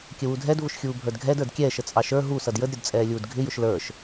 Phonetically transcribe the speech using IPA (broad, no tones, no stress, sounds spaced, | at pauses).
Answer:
kʲ ə w u dʱ ɛ d v ʊ ʃ xʲ uː bʱ ə˞ d ɡʱ ɛ d ə˞ d kʲ ɛː ʃ ə t͡sʼ ɑ ʃ ə˞ ɦ u s ʌ d j ə d ɾʲ ʊ d t͡sʼ ɛː lʲ uː d ɡʱ ɪ j ʊ ʃ l ə˞ ʃ